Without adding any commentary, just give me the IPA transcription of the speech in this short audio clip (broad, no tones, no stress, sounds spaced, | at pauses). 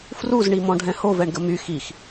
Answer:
f r u z ɳ i m ɔ̃ ɖʱ ɛ̃ h o v ɛ ɳ ɡ ə m y x i x